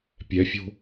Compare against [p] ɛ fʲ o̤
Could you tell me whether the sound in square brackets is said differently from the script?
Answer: yes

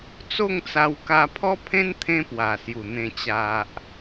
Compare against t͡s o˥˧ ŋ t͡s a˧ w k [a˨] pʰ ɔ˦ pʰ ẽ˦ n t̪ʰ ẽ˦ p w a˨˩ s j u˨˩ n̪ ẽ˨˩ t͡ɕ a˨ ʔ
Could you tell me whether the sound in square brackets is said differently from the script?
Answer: yes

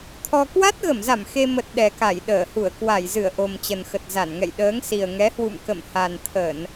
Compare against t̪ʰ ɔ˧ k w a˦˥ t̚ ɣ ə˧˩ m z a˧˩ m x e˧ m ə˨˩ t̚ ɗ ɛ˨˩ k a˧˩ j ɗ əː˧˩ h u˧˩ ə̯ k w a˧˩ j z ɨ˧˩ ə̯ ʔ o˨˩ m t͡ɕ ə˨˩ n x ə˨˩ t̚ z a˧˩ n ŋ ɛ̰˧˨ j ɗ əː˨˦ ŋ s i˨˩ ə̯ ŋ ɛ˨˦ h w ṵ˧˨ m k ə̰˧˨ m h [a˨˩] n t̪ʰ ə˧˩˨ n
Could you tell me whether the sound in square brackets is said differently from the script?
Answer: no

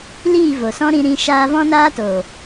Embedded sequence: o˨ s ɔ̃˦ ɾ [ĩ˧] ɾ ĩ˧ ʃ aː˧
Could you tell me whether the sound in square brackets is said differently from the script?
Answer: no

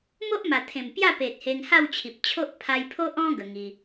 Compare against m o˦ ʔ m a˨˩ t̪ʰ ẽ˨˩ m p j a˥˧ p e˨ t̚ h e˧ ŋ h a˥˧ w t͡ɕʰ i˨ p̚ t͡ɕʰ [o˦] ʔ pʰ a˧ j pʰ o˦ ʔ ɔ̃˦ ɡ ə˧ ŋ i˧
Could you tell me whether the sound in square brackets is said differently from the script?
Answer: no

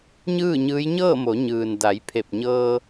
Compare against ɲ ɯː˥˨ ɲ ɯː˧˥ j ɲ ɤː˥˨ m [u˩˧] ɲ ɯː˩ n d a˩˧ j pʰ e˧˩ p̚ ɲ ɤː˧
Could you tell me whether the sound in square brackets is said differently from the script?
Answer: yes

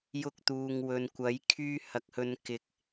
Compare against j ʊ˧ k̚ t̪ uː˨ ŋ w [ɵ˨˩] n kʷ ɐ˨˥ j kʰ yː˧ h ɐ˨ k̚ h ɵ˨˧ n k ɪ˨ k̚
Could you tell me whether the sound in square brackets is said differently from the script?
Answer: yes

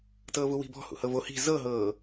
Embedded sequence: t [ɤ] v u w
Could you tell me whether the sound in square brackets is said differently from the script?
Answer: yes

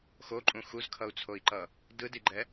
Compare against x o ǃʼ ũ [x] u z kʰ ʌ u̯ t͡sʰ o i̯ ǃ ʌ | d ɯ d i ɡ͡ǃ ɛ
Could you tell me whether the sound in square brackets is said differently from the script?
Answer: no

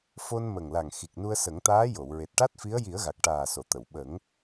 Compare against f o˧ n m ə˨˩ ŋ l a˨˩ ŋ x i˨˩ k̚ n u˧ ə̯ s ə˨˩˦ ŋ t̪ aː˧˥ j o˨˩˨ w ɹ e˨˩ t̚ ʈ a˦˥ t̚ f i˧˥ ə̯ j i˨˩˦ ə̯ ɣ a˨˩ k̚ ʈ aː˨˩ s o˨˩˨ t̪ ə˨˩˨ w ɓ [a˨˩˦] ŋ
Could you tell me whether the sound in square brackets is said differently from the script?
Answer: yes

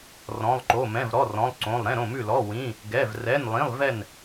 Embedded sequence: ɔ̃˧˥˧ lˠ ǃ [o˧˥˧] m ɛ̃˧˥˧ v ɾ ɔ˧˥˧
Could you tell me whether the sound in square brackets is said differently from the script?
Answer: no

